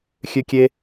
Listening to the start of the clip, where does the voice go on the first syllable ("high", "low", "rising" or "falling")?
high